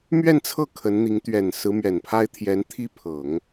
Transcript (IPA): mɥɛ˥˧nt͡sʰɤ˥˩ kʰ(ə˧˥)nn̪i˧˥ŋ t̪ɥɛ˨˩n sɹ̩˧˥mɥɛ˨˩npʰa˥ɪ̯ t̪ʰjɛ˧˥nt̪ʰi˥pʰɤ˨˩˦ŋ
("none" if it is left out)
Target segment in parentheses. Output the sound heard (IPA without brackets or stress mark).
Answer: ə˧˥